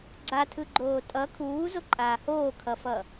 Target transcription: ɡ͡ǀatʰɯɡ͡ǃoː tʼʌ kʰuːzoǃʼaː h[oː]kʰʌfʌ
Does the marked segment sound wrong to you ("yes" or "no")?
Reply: no